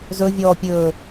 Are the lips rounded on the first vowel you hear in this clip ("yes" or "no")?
yes